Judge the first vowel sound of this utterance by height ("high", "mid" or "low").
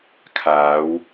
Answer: low